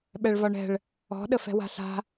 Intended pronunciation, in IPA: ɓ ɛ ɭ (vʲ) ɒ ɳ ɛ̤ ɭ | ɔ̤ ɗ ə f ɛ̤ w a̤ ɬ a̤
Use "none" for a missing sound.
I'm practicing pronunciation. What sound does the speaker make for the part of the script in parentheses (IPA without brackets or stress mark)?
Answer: v